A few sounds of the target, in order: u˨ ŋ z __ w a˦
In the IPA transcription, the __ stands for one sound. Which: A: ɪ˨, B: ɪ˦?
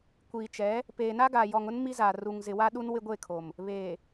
A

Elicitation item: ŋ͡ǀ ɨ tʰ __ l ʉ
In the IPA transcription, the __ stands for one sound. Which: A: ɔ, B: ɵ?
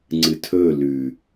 B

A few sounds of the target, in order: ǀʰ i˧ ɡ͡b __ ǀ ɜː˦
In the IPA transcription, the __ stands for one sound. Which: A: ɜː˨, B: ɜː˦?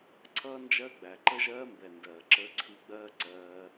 B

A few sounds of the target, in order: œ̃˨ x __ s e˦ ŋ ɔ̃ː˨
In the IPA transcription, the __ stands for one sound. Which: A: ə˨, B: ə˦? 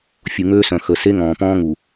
A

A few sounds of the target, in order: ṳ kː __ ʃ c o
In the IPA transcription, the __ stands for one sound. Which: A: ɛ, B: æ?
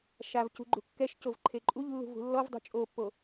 A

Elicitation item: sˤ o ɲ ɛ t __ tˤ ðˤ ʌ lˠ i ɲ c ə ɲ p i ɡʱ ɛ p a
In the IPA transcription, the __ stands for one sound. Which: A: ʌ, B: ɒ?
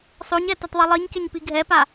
A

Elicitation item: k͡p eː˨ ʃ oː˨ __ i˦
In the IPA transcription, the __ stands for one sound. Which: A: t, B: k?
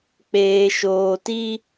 A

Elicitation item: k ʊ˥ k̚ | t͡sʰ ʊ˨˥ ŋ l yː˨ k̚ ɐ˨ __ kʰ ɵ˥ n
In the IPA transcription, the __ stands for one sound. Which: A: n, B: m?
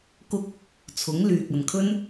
A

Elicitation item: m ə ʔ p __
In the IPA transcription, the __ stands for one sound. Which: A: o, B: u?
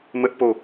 A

